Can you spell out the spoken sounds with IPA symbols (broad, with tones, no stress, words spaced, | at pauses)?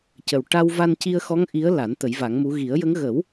cə˨˩w ʈa˧w va˧nci˧ə̯xɔ˧˥ŋ ʔi˧˥ə̯la˨˩˦n t̪ə˨˩˦jva˨˩˦ŋmu˧˥ ɣi˨˩˦ə̯jə˧˥ŋ ɣə˨˩˦w